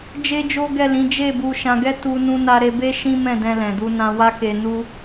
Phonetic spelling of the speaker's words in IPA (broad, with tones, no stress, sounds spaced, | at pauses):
d͡ʒ e˦ d͡ʒ o˦ ɡ ɛ˦˨ l ĩ˨˦ d͡ʒ e˦˨ b u˧ ʃ ã˧ ɡ ɛ˦ t u˦ n ũ˦ n a˦ ɾ e˧ b e˦ ʃ ĩ˦ m ɛ̃˦˨ d ɛ̃˧ l ɛ̃˨ d u˧ n ã˧ w a˦ k e˧ n u˦